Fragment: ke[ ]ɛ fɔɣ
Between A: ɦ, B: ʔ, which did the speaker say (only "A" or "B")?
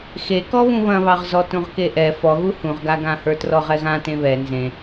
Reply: B